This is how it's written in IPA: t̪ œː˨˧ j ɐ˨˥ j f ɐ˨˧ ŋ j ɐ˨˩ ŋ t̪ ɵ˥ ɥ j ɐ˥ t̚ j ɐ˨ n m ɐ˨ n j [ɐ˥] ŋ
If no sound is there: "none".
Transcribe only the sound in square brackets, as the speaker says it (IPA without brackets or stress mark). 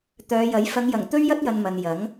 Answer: ɐ˨˥